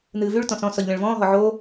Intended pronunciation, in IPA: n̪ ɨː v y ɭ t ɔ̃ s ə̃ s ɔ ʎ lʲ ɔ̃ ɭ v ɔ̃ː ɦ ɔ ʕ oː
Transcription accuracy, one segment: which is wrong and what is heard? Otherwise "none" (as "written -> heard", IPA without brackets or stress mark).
ə̃ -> ɔ̃